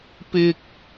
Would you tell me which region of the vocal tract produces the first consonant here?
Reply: lips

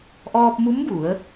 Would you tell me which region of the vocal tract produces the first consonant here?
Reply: throat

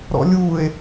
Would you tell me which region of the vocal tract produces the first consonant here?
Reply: tongue tip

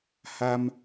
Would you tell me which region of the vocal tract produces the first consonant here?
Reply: throat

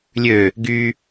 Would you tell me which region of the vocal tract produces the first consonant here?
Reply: tongue tip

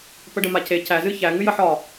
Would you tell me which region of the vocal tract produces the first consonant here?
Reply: lips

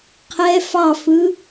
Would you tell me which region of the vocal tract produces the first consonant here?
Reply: uvula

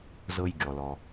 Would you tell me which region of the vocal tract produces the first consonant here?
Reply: tongue tip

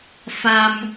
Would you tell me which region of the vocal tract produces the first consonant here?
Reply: lips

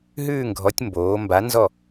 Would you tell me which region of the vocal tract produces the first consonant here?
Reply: throat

